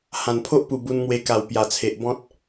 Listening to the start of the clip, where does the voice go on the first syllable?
low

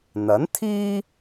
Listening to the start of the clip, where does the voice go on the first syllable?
rising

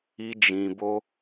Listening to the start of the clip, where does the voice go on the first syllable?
high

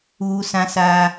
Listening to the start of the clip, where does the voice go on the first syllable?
high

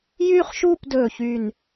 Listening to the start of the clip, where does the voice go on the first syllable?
high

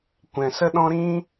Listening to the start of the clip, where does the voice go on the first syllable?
low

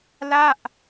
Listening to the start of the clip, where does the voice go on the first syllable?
falling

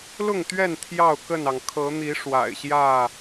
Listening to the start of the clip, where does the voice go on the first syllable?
falling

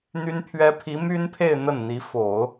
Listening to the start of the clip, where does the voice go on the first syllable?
high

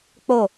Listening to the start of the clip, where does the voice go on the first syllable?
falling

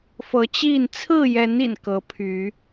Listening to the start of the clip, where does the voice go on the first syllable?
rising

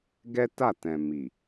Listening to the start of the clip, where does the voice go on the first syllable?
high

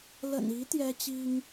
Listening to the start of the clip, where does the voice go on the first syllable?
low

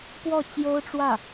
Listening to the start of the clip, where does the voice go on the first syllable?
falling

